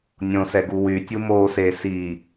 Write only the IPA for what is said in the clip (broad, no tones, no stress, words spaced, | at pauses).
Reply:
nʲõsɛɡu wy tʲumoːseː si